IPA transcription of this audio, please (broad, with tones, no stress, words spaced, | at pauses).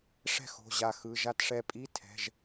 ʂɛ̤˥˩xo̤˩˧˩ ʑa˧˩xɯ˩˧˩ʒa˥˩t ʂɛ˧˩pʼi˧˥˧ tʰɛ̤˩˧˩ʒ